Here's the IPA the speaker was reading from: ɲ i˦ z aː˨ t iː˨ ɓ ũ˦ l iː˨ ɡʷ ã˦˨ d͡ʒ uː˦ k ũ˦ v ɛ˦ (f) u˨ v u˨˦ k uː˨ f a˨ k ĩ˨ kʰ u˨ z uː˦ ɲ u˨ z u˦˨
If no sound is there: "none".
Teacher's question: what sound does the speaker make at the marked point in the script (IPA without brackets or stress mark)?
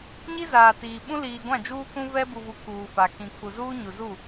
b